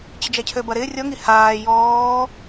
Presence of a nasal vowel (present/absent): absent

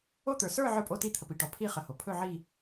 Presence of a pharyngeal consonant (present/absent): present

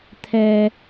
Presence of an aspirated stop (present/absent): present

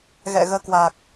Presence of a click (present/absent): absent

